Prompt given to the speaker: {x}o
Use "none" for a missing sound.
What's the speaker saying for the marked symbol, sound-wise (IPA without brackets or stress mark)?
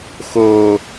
x